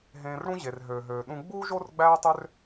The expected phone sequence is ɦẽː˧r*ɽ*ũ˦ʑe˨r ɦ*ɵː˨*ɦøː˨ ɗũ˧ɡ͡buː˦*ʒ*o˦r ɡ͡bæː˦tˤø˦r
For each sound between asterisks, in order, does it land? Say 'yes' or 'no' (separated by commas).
yes, no, yes